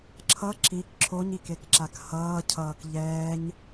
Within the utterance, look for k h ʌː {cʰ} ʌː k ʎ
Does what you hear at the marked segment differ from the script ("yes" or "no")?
no